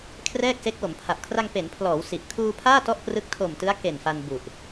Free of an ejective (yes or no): yes